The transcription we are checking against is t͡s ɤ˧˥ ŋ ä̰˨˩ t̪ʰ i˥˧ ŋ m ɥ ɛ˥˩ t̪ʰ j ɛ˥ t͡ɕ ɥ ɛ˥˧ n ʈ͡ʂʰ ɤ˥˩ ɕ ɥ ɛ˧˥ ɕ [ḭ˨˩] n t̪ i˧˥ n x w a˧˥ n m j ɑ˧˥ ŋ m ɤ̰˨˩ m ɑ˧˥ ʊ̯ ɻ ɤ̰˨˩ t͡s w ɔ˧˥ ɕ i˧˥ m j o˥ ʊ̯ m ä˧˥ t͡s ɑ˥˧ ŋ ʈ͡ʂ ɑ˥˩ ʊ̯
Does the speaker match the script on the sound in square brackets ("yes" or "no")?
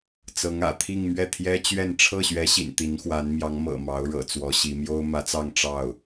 yes